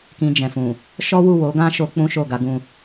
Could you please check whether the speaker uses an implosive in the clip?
no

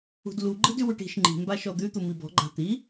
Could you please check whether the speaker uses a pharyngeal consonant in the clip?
no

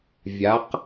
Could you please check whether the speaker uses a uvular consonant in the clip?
yes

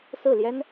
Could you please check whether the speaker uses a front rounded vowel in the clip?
no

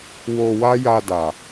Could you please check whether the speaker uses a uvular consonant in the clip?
no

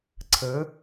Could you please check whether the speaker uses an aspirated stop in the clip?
yes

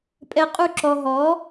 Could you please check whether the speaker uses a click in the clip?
yes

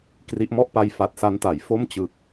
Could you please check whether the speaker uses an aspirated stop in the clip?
no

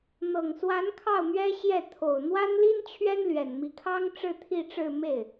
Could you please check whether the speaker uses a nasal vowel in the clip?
no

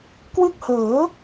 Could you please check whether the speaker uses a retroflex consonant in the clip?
no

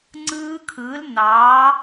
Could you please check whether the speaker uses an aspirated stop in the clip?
yes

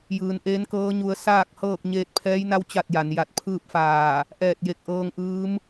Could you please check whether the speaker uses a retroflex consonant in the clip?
no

